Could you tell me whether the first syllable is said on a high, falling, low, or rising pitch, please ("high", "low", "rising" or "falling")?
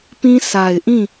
high